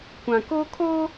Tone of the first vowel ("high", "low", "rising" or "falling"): low